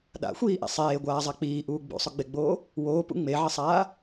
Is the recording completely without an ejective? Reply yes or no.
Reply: yes